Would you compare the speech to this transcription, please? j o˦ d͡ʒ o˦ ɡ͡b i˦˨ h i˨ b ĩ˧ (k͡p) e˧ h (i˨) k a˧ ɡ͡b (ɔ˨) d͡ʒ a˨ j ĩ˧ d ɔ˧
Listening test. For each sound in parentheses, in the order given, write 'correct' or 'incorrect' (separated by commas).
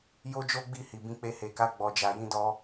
correct, incorrect, correct